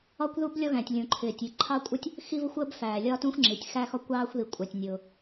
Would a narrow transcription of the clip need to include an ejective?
yes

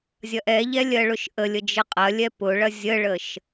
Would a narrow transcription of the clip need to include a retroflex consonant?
yes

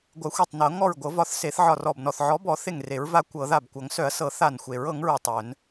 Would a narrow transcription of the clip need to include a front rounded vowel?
yes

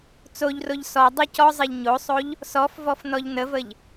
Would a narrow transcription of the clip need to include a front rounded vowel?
no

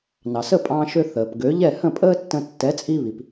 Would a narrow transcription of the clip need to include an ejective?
yes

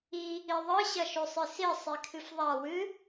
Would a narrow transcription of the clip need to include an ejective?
no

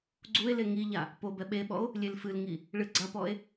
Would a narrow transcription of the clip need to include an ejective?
no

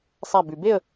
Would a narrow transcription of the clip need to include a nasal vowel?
no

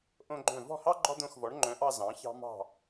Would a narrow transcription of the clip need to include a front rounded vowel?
yes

